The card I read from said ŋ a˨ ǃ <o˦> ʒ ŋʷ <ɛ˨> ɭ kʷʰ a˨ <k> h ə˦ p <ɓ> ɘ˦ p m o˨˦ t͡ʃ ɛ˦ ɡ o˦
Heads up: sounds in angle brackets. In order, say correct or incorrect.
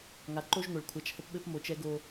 correct, incorrect: ɘ˨, incorrect: t͡ʃ, correct

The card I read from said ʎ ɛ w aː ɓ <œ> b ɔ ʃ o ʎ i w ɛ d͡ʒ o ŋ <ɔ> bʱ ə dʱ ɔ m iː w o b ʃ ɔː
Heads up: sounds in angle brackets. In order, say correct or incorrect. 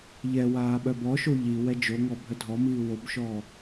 correct, correct

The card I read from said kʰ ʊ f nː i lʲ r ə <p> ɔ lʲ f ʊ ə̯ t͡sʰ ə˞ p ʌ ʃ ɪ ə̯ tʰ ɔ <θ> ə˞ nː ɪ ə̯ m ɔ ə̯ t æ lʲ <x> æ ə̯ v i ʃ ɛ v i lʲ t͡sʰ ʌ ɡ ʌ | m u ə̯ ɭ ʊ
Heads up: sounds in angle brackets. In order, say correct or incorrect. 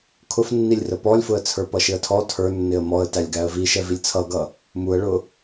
correct, incorrect: tʰ, incorrect: ɡ

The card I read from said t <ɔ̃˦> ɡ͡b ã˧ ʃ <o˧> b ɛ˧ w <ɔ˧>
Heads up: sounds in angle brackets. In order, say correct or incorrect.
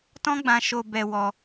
correct, correct, correct

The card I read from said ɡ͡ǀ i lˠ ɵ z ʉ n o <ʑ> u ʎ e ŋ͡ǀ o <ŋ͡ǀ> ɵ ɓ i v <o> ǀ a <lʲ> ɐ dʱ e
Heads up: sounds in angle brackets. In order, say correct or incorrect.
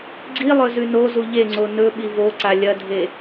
incorrect: z, incorrect: n, correct, correct

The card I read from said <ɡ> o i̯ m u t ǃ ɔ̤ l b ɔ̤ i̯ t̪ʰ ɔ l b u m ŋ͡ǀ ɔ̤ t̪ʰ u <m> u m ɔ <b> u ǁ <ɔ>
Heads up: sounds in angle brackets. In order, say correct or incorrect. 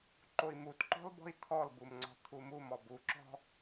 incorrect: ǃ, correct, correct, incorrect: ɔ̤

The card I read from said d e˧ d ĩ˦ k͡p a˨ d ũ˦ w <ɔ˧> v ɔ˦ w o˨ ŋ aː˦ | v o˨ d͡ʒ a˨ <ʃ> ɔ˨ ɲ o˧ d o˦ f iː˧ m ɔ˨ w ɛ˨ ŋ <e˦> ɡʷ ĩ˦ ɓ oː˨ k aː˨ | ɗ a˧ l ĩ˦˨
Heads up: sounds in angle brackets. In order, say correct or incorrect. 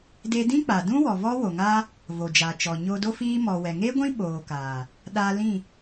incorrect: ɔ˨, incorrect: t͡ʃ, correct

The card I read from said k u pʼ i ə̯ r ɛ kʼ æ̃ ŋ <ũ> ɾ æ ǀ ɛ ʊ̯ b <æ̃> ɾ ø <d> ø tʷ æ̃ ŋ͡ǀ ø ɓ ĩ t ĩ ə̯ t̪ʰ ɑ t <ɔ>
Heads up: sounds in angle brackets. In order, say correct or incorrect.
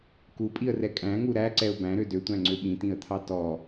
incorrect: u, correct, correct, correct

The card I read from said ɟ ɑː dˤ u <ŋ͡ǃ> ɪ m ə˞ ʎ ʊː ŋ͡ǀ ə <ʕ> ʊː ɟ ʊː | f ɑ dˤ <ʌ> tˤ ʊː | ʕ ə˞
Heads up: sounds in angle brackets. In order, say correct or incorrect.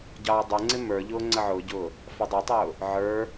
incorrect: ŋ͡ǀ, correct, correct

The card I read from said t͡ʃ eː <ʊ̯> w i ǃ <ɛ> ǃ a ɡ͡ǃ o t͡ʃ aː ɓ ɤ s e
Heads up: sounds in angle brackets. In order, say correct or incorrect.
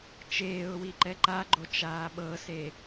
correct, correct

